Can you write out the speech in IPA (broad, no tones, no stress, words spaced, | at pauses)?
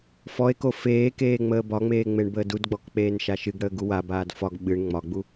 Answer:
fɔe̯ko feːkeː ŋ͡məːbɒŋ͡meː ŋ͡meɳbəːdudɡ͡bɔk k͡peːnʃaʃɨɡɽəː ɡuwabaːd fɒɡ ɓɨɳ ŋ͡mɒɡ͡bu